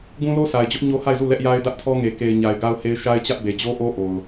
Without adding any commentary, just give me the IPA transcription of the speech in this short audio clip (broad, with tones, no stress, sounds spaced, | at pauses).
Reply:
ɡ ũ˦ l o˦ s a˨ ɪ̯ d͡ʑ ʊ˦ ʔ ɲ o˦ h a˦˨ ɪ̯ z u˦˨ l ɛ˦ ʔ j a˦ ɪ̯ d ä˦ ʔ tʰ ɔ˦ ŋ e˨ k e˨ ɪ̯ ɲ a˨ ɪ̯ ɡ a˦ ʊ̯ h e˦ ɪ̯ ʃ a˦ ɪ̯ t͡ɕ ä˦ ʔ b e˨ d͡ʑ o˦ ʔ o˦ ʔ o˨ ʊ̯